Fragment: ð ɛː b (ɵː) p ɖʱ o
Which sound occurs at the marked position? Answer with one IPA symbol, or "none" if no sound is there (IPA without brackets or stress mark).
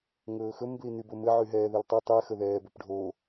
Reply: ɵ